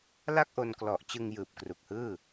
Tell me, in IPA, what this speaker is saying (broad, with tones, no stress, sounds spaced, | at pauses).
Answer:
l a˥˩ k̚ ʔ o˧ n k l ɔ˨˩ ʔ t͡ɕ ɯ˧ ŋ j ɯː˨˩ p̚ k r u˨˩ k̚ h ɯː˥˩